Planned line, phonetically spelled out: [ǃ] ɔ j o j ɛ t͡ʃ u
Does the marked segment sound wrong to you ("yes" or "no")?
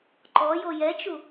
no